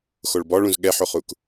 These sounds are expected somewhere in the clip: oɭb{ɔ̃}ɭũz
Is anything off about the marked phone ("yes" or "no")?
yes